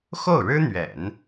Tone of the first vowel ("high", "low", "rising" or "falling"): falling